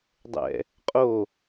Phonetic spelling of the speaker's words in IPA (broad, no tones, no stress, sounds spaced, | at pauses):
dˤ ɛ̰ | qʼ o